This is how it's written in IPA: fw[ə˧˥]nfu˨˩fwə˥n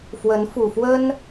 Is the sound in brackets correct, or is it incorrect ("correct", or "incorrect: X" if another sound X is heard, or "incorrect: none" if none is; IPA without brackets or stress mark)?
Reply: correct